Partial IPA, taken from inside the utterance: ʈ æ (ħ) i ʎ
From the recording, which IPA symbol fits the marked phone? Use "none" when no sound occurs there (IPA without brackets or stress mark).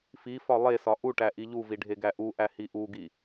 ʔ